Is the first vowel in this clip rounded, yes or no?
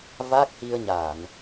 no